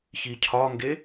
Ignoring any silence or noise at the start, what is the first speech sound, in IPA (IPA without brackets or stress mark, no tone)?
ç